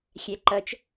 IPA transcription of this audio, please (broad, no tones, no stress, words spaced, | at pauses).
xʲæǃʌt͡ʃ